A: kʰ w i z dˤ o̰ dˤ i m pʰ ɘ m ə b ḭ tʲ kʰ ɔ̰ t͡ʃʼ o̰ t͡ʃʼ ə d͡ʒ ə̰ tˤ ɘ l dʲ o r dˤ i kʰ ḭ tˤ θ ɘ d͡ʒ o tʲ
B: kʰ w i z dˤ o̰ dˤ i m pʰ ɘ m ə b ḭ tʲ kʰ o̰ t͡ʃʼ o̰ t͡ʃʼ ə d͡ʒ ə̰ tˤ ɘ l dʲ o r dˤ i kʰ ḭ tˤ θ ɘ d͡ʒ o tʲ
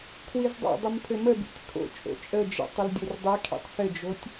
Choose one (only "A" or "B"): B